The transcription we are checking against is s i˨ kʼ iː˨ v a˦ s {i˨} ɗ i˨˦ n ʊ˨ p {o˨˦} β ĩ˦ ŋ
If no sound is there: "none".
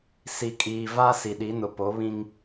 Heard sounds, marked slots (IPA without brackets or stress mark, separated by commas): i˨, o˨˦